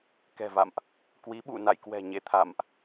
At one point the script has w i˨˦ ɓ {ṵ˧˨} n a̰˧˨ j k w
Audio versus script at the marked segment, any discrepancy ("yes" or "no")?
no